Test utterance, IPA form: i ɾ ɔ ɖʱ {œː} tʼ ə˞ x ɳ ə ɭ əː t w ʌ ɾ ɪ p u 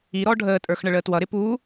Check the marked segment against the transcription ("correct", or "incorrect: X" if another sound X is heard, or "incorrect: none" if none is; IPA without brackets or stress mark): incorrect: əː